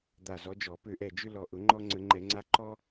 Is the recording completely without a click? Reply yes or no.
no